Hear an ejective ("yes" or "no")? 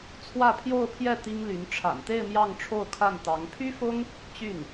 no